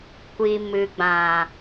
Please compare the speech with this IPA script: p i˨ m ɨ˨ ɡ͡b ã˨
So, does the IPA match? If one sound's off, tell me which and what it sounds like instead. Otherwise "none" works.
p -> kʷ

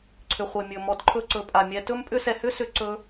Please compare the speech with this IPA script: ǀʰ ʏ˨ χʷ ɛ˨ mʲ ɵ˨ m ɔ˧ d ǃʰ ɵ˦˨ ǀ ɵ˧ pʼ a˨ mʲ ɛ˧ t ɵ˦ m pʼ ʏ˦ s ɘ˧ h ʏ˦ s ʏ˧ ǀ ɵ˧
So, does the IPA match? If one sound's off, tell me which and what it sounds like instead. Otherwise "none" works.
ɘ˧ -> ɛ˧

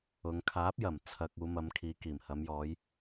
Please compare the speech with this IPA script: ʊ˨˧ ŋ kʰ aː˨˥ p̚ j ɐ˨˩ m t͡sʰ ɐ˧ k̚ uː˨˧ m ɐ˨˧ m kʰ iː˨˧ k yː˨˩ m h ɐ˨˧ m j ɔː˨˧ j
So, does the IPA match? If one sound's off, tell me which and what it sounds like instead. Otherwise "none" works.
yː˨˩ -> iː˨˩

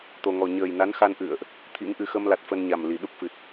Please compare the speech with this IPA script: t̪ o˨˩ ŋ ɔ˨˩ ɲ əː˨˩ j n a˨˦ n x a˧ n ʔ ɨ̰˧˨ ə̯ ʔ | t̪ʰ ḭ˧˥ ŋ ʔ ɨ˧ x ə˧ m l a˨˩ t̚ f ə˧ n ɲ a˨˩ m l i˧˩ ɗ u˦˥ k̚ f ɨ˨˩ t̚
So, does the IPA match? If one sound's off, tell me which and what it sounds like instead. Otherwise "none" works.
none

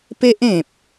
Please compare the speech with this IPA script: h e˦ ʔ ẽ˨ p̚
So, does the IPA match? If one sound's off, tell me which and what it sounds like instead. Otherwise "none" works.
h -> p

